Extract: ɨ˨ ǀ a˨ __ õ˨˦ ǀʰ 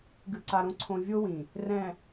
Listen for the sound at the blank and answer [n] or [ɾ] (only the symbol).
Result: ɾ